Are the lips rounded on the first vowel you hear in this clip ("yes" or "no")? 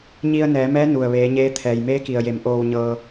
no